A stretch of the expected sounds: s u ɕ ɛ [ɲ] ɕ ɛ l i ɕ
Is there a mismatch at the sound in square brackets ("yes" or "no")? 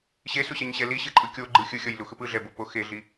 no